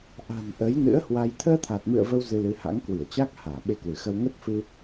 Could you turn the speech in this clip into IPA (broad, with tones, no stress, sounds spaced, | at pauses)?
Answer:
ʔ a̤˨˩ n ʔ ə˨˦ j n ɨ̰˧˥ ə̯ h w a˧ j t̪ʰ əː˧ t̪ʰ a˨˩ t̚ m ɨ̰˧˨ ə̯ v ə˧ w z ɨ˧ l ɨ˨˦ h a̰˧˥ ŋ k w i˧˩ ə̯ t͡ɕ a˦˥ k̚ h aː˧˩ ɓ e˧ k w ɨ˧˩ x ə˧ w ŋ ə˦˥ t̚ f ɨ˧